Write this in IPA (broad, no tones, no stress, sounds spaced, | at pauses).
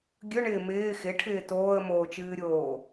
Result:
ɡʲ ɵ ɳ ɪː m ɪː x ɪ ʈʰ ɪː t oː ə̯ m oː t͡ʃ ɨː ɾʲ oː